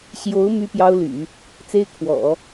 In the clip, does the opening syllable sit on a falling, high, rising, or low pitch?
rising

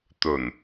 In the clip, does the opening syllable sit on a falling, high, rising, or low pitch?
low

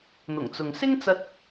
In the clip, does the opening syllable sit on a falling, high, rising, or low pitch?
low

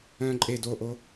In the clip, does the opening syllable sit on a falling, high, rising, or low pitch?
low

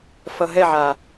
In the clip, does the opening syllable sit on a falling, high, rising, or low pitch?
low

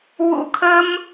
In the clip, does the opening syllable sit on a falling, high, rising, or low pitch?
high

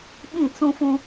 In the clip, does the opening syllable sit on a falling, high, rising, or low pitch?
falling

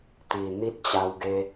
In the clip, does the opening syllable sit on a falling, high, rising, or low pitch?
low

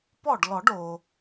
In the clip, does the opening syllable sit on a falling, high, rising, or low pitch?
falling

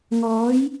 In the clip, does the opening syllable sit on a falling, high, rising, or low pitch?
rising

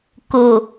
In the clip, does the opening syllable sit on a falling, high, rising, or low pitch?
low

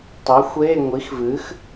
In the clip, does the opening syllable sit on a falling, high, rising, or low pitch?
rising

